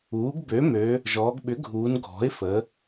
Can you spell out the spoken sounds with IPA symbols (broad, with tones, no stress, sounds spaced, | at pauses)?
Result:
uː˩˥ ɡ b ø˩˥ m ø˩˧ | ʒ ɔː˩˧ ɡ ɓ ʏ˩˥ ɡʱ uː˩˧ n ɡʱ ɔ̤˩˥ ɪ̯ f ə˩˧